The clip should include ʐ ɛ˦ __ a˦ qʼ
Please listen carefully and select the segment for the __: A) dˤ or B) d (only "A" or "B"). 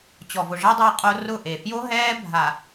A